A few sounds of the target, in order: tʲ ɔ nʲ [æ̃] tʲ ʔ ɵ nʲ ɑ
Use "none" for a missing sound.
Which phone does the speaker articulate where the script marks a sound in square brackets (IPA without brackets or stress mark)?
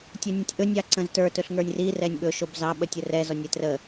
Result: ã